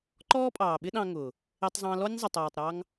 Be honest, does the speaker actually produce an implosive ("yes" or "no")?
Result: yes